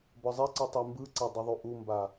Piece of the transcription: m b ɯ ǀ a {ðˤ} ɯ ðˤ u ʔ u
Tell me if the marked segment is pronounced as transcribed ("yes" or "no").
no